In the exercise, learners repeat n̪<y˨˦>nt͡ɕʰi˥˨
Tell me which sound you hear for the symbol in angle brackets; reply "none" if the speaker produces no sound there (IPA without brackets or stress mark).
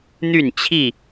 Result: y˥˨